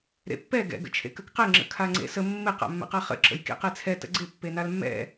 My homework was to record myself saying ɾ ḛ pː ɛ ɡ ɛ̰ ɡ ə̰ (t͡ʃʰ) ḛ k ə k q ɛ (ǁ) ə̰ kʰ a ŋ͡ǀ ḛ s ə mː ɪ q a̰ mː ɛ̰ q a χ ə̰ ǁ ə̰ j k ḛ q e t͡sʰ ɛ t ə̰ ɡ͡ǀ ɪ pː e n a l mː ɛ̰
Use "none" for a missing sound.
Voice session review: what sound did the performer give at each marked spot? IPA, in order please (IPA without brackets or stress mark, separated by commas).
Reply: t͡ʃʰ, ŋ͡ǁ